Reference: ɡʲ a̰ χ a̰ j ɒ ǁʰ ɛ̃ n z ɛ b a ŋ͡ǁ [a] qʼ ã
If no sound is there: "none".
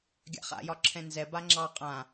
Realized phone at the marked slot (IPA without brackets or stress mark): ɑ